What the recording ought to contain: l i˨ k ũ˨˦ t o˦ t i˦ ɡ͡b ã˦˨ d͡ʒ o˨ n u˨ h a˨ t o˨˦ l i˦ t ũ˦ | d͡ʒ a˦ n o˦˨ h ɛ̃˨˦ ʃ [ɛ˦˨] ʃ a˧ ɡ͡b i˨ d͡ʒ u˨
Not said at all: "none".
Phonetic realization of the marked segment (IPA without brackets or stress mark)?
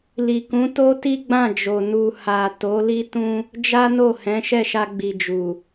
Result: ɛ˦˨